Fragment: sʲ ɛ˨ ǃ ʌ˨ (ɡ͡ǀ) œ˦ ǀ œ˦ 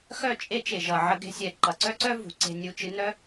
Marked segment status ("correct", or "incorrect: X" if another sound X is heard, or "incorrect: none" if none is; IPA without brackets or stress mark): incorrect: ǀ